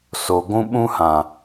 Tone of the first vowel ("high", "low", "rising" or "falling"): low